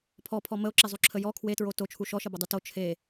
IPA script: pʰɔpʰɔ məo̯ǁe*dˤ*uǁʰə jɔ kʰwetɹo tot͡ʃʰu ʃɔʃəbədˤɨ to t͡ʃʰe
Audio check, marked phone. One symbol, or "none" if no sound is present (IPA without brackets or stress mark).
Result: zˤ